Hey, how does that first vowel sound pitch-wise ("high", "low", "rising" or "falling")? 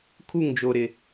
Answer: falling